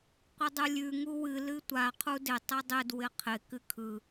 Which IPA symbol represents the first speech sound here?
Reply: qʷ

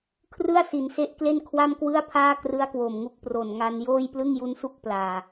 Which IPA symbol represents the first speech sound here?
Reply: kʰ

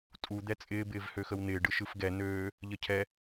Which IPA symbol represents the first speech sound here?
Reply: tʼ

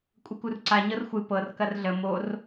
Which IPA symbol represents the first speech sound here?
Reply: kʷʼ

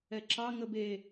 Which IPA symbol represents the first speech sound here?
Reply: ɛ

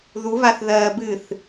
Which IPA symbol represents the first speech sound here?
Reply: ð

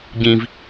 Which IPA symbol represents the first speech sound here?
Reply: ɟ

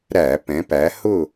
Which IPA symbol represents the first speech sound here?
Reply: ɾ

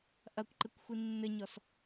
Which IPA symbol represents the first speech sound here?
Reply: ʔ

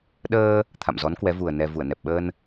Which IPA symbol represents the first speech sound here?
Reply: ɗ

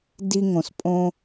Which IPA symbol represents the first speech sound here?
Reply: d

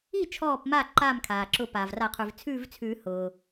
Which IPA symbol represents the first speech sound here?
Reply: i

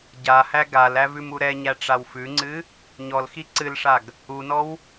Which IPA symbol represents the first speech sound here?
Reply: ɟ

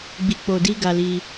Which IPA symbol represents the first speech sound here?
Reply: ɡ͡b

